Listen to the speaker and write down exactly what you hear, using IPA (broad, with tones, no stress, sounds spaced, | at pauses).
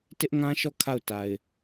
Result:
t ɪ˦ ʔ ŋ ã˦ ʃ ɔ˦˨ kʰ a˦˨ ʊ̯ t a˨ ɪ̯